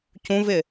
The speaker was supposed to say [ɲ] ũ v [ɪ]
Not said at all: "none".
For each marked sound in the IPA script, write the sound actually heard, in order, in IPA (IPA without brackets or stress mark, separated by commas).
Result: c, ɪ